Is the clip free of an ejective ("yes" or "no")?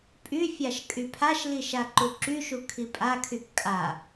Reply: no